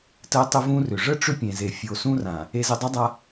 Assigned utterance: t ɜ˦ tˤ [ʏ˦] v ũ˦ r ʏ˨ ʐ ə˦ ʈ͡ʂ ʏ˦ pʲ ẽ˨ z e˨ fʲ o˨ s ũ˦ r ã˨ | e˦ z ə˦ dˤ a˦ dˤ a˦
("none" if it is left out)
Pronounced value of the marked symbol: ə˦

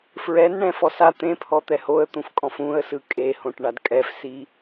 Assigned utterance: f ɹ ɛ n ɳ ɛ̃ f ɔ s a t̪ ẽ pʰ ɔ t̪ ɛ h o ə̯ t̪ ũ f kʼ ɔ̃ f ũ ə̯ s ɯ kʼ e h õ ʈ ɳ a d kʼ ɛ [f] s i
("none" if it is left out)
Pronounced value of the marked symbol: f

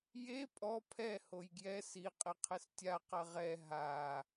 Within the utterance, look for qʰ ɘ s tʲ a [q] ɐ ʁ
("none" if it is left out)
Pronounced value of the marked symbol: q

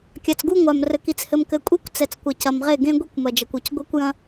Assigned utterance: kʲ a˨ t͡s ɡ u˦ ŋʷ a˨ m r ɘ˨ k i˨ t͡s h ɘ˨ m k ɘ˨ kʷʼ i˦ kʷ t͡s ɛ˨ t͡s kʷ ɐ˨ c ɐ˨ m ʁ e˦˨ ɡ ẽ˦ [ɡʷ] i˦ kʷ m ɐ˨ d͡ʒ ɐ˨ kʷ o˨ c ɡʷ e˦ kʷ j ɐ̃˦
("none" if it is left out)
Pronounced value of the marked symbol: ɡʷ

